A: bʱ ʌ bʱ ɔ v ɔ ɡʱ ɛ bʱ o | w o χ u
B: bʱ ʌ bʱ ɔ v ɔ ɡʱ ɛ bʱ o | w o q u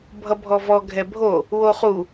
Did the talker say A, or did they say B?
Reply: A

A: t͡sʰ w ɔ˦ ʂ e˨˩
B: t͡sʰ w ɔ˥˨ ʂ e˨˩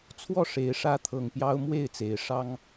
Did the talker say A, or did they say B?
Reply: B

